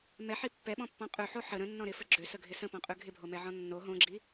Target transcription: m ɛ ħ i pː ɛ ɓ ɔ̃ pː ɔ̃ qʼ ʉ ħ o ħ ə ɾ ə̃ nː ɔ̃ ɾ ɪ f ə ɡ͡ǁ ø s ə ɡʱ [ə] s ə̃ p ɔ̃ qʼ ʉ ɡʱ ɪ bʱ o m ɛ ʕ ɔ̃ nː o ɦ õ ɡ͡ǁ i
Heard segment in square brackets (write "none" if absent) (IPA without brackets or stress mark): ɪ